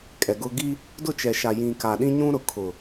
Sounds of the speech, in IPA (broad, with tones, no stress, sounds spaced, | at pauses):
kʼ ɛ˨ ɡ ʊ˦ ɡ i˦ | d ʊ˦˨ t͡ʃ ɛ˨ ʃ a˨ j ĩ˨ k a˨ ɗ ĩ˦ ɲ ũ˦ ɾ ʊ˨ kʰ ʊ˨